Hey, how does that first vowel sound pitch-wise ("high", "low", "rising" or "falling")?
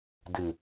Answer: low